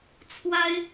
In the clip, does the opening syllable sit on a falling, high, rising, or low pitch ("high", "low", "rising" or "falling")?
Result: high